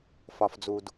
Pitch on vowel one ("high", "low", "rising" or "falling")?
low